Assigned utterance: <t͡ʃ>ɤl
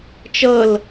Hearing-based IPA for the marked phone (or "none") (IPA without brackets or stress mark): t͡ʃ